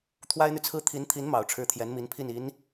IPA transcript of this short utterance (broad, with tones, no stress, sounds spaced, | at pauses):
t̪ʰ w a˥ ɪ̯ n̪ y˨ t͡sʰ ɹ̩˥ t̪ʰ i˧˥ n t̪ʰ i˧˥ n m ɑ˨˩ ʊ̯ ʈ͡ʂʰ ɻ̩˥˩ t̪ʰ j ɛ˧˥ n m i˧˥ n pʰ i˥˩ n i˧˥ n